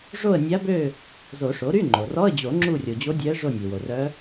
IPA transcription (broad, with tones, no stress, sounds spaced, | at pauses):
ʐ o˦˨ ə̯ nʲ a˧˥ b ø˦˨ | z o˨˩˦ ʂ o˩˥ ɾ y˧˥˧ ŋ͡ǃ o˩ r ɔ˧˥˧ ə̯ d͡ʑ o˨˩˦ ŋ͡ǁ u˦˨ rʲ o˩ d͡ʑ o˧˥ dʲ ɛ˧˥ ə̯ ʐ o˦˨ nʲ ø˩ w o˩ r œ˧˥